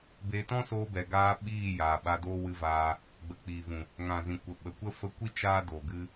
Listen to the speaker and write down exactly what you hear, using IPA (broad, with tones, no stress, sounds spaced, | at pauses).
b e˧ t ɔ̃˦ s oː˧ b ɛ˨ ɡ aː˧ ɓ iː˦˨ j aː˨ ɓ a˧ d oː˦ w ɨ˧ v aː˧ | ɡ͡b ə˨ k͡p i˨ v ũ˨ | ŋ ã˨ z ĩ˨ kʷ ə˨ ɓ ə˨ kʷ ə˦ f ə˧ kʷ i˦ t͡ʃ aː˦ d o˨ ɡ ɨ˧